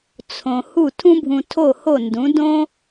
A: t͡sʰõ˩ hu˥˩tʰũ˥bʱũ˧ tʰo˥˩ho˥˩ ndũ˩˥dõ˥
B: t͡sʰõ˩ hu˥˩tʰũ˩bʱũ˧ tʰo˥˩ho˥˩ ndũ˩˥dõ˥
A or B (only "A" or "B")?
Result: A